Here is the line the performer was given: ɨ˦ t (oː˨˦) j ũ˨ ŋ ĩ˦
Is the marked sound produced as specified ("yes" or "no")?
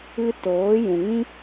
yes